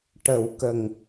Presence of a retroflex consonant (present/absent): present